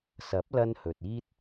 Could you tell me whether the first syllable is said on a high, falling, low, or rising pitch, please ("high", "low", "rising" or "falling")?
rising